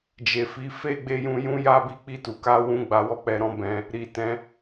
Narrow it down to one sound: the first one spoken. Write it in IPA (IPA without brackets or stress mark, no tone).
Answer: d͡ʒ